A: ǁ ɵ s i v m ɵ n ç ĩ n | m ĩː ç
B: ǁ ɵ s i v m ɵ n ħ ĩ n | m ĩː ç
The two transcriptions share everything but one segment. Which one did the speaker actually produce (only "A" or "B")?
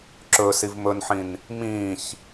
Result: B